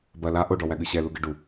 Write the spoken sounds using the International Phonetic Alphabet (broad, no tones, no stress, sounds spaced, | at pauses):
b ɐ l a ʔ o ɖ ɔ w æ ɠ ɨ ɕ ɛ l u ɡ ɨ ɖ u